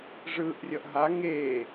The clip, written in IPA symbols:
ʐɯːʔrʲʌʔɦa ŋeː

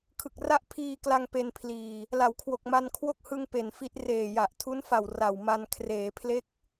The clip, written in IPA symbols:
kʰɯ˨˩k̚ ra˥˩ʔpʰiː˧kla˧ŋ pe˧npʰliː˨˩ | la˩˦wkʰwo˨˩k̚ ma˧nkʰwo˥˩k̚hɯ˧ŋ pe˨˩nfi˦˥t̚ reː˨˩ja˨˩ʔ tʰu˦˥nfa˨˩w ra˨˩wma˧n kʰreː˩˦pʰle˦˥k̚

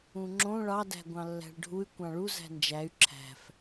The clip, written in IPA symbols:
ũŋ͡ǁõ ɭɑdæ̤ ɡʷɑ̃lːæ̤ɭɖʱuy̯ kʷɑ̃ɭu zæ̤nd͡ʒæy̯ ǁʰæ̤f

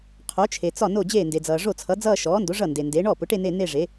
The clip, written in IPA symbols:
qʰo˩˥t͡ʃʰe˩t͡sɒ˥˩ no˥˩d͡ʑeː˥˩nde˩d͡zʌː˩ ʐo˥˩t͡sʰʌ˩˥d͡zʌː˥˧ ʃɔː˩˥ndo˩˥ ʐʌ˥˩nde˩nde˩˥ ɳɔ˥˩pʊ˩˥ʈe˥˧ ne˥˧ ne˥˧ʐe˩˥

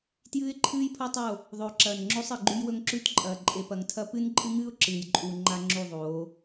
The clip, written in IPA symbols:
tjɨː˦ɪ̯ǃʰɨː˦jpʰo˦tˤo˦˨ | ðˤɵː˨ǁɐː˨nŋ͡ǁo˦sˤ ɨ˨ɡ͡ǃʉ˦jwɵ˦ŋ ǁʉ˦tǃʼɐː˨ ǃʼe˨pɐ˨ŋtʰɐ˦ pɨ˦nǃʼɨ˦ŋɨː˦ʊ̯ ǁɨː˨jǃʼu˨ ŋ͡ǃa˦ŋ͡ǁu˦˨ðˤoː˨˦

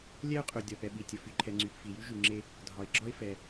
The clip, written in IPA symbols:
lʲɛ˥ʊ̯qʼø˩ dʲɒ˩pɛ˩ ɓi˩tʲə˩ fy˩ǃʰɛ˩ŋ͡ǀy˩p fi˩jy˥ ʒy˩ŋ͡ǁe˥ | dʱɒ˩ɪ̯ɡ͡ǁɒ˥ɪ̯fɛ˩

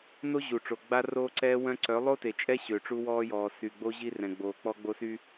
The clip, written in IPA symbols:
no˦ ʑu˨ʈ͡ʂo˨ ɡ͡ba˦roː˦ǀɛː˦ wœ̃˦ ǀœ˨˦ lˠo˦te˨t͡ʃʼɛ˦ ɕø˨ʈ͡ʂu˦wɔː˦jɔː˨ sy˨ɡ͡bo˦ ʑi˦rɛ̃˨ɡ͡boː˨ k͡pɔ˦ɡ͡bo˦sy˦

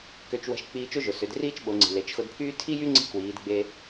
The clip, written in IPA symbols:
kø˧t͡ʃwə̤˧˥ʃ k͡piː˧t͡ʃo˥ʒʊ˩ sʏ˩˧d riː˥t͡ʃɓo˩˧ŋ͡ǀi̤˩ le˩˧t͡ʃxʊ˧dpʰyː˥ tʰi˥jy˥ŋ͡ǀi̤˧˥ kwiː˩˧dɡ͡be˧

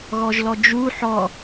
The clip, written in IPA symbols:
ɣɔʒlɔd͡ʒu ħɔ

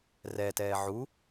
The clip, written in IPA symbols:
rɛtɛː ʕu

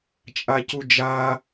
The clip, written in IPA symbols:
t͡ʃʼacud͡ʒa

